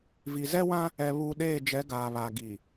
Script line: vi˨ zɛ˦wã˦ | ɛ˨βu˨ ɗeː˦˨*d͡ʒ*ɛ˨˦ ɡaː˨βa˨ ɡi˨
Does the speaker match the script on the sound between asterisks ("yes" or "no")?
yes